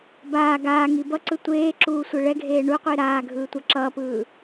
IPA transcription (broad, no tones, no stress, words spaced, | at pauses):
baː ɡaː ŋibʌǀɯ tʷeːǁuː sʷeɭɛɡʱeː ɳuqʷi ɾaː ɡʱɯːtʷʌǁʌːpɯː